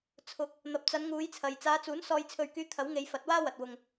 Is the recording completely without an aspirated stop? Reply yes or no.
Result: no